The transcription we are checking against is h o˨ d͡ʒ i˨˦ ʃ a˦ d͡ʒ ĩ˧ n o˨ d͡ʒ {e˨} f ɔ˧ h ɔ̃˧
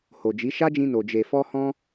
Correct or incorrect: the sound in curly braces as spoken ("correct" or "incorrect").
correct